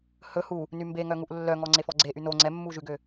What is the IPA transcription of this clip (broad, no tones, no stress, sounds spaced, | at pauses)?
h ɵ h u | n y m b e ŋ œ ŋ u ʔ lː œ ŋ ɔ ŋ͡ǀ e f ɔ ɡ͡ǀ e ʔ y n o ŋ͡ǀ ɛ mː u ʒ ʉ ɡ ø